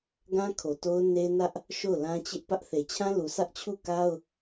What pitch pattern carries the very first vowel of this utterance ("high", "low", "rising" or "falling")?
high